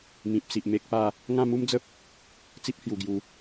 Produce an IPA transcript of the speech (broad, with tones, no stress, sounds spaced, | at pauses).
m ĩ˨ p̚ s i˨ ʔ m e˦ k̚ p a˥˧ | ŋ ã˥˧ m u˦ m d͡z ə˦ p̚ | t͡s i˦ p̚ h j u˨˩ ɡ j u˨˦